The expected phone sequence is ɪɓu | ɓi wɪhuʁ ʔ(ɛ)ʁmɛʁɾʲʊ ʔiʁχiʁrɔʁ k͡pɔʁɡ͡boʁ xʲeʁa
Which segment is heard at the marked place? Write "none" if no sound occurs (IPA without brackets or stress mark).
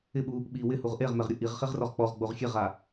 e